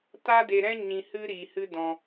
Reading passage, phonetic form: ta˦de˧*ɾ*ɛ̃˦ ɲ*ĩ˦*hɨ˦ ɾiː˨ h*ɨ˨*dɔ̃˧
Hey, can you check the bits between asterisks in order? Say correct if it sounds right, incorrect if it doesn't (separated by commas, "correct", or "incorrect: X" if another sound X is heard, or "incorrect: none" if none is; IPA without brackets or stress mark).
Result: correct, incorrect: ĩ˧, incorrect: ɨ˦